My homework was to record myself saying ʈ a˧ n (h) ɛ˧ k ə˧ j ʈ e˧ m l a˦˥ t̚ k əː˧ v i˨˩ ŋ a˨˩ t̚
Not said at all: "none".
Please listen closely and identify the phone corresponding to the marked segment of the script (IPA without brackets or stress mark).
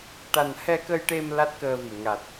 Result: h